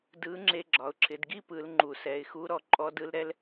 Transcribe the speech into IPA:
d ɯ˧˥ ŋ͡ǁ e˧ ɡ͡ǁ ɒ˩˧ ʊ̯ ǁʰ ɪ˩˧ d ɡ i˥ p ɯ˩˧ l ŋ͡ǃ u˩ s ɛ˩˧ ɪ̯ x u˧˥ ɾ ɔ˩˧ ǃʼ ɔ˧˥ d ɯ˧˥ l ɾ ɛ˧˥ l

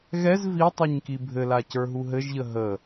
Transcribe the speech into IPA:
ɣ ɛ z v i tˤ i ɲ k i bʱ ɘ l a c ə˞ ɦ u ɦ ɘ ʒ ʎ ə ɦ ə

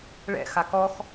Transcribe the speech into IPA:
ɭ ɛ̰ x a k ɔ x

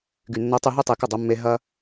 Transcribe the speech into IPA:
ɡ y˨ nː o˧ tˤ y˧ ɦ y˦ tˤ e˧ k ɐ˦˨ dˤ œ˦ mː e˦ ɦ ɐ˦

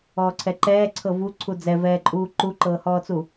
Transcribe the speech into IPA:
ɔː ǀʰ ɛ ǃ ɛː ǀʰ ɤ v u ǀʰ u d͡z ɛ v ɛː ǃʼ uː ǃ u ǃ ɤː h ɔː t͡s u

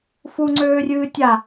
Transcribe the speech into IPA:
f u ŋ͡ǀ øː rʲ ɨː tʲ a

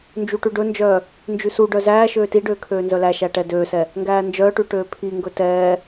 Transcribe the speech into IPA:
n d͡ʒ u ʈ ʉ ɖ ɵ n d͡ʒ œː | n d͡ʒ ʉ s u ɖ œ z æː ʃ øː t i ɖ øː kʰ øː n z œ l æ ʃ æ ʈ ɛ d øː s ɛ | ŋ ɡ æː n d͡ʒ œː ʈ ʉ ʈ øː pʰ i ŋ ɡ ɵ t ɛː

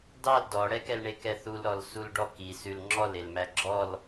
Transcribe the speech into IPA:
d ɑ l d ɔ ɽ ɛ k ɛ l ɳ e k ɛ θ u l ɾ ɔ l s u l ɖ ɔ k i s ʉ l ŋ͡ǁ ɔ l e l m æ ɡ͡ǁ ɔ l

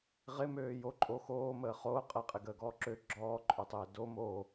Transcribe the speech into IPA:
ʁ ɪ m øː j o ǃʼ o x oː m əː χ oː qʼ ɛ qʼ ɪ ɡ əː ɡ ɔː ǁ ø ɡ͡ǁ ɔː ǃʼ ø tˤ ɪː d o m o

